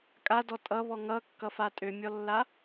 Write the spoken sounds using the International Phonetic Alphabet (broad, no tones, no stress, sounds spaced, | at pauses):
kʼ a d ɔ tʼ ʌ β ɔ ŋ ʌ kː ʌ f a tʼ ø mʲ ɔ lː a